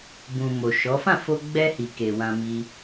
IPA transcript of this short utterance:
bũ˨mo˨ʃɔ˨˦ fã˦˨fo˧ ɡ͡bɛ˧hi˨ ke˨wã˧ mi˧

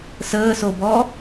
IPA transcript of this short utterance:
səːsobɔ

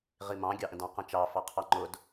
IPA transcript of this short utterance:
ʁimɑ̃ ɡʲɑʔə̃dɑ̃ qə̃t͡ʃɑ fɑqʰɑŋ͡ǃʊd

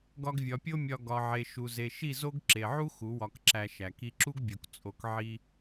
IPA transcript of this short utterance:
ɡɒ˧ɡvʲɒ˨pʲo˦mʲɒ˧ ɡɒ˨ʕe˨ ʃu˨ze˨ ʃi˦˨zo˦ɡ ǁe˨ʕu˦ xu˨˦wɒ˧kǁæ˧ ʃæ˧ ki˧ǁu˦ɡbʲo˨k t͡sʼo˧k ʕi˦

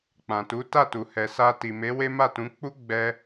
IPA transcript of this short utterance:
k͡pã˨tu˨˦ta˦˨tu˨ hɛ˨sa˧ti˨ me˨˦we˦ma˦˨tũ˨˦ k͡pu˦ ɡ͡bɛ˦

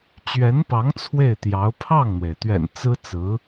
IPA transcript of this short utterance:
t͡ɕɥɛ˧˥npɑ˧˥ŋ t͡sʰwe˥˩ɪ̯t̪jɑ˧˥ʊ̯ pʰɑ˥˩ŋn̪we˩ɪ̯t̪ɥɛ̰˨˩n t͡sɹ̩˥t͡sɹ̩˧˥

